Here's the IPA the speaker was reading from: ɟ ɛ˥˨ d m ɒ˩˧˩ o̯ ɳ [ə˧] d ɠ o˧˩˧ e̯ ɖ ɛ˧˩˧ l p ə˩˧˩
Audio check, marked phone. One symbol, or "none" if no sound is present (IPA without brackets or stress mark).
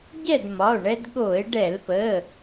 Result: ɛ˧